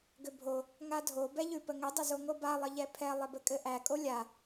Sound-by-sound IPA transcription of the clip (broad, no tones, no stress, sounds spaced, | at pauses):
ɡ ʏ bʱ o | ŋ a dʱ o b ɛ ʎ ʉ p ə ŋ ʏ dˤ ɘ z o ŋ o b a lˠ ə ʎ ɛ pʰ ɛ lˠ ɘ b ɘ kʼ ɘ ʔ æ kʼ o lʲ a